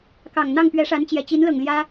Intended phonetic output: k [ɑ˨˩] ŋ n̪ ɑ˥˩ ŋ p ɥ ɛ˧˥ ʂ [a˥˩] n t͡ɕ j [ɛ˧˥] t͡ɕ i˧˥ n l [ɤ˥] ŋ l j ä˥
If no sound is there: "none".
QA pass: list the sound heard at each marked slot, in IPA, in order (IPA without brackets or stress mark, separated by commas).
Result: ɑ˨˩, a˧˥, ɛ˨˩, ɤ˨˩